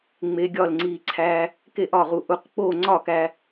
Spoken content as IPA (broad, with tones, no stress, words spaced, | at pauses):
ŋ͡me˧ɡʲɒː˥˩lŋ͡ǀiː˧ ǀʰæː˧ | ke˥˩ʔɒː˥˩ʁu˥˩ ʔu˧q k͡poː˥˩ŋ͡ǀɒ˥˩ kæ˧